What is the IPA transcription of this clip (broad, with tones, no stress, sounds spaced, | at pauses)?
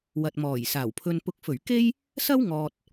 w ɐ˨ t̚ m ɔː˨˩ j s aː˨˩ w pʰ ɵ˨ n p ʊ˨ k̚ f ɵ˨˩ ɥ k e˥ j | s ɐ˥ w ŋ ɔː˨ t̚